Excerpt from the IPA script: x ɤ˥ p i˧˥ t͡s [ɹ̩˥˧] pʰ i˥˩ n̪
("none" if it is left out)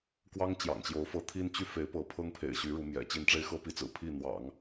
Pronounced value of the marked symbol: ɹ̩˨˩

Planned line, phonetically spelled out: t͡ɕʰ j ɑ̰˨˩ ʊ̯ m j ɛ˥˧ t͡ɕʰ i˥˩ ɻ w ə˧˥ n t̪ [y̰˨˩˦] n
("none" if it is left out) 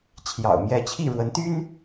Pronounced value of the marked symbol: y˥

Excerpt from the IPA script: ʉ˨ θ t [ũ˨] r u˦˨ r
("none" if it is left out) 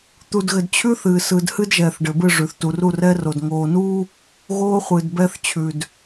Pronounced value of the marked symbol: u˨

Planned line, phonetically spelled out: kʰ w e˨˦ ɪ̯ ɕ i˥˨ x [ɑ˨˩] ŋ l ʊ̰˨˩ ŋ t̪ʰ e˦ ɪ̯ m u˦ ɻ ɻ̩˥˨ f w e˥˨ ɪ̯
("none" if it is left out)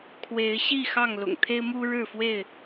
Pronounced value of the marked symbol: ɑ˥˨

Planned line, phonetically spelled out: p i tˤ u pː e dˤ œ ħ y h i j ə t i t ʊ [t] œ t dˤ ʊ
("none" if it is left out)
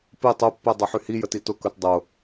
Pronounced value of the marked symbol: k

